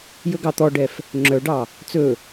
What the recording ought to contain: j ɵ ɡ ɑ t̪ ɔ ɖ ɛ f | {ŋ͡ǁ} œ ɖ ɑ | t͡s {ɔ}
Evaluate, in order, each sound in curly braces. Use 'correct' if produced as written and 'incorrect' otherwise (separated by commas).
correct, incorrect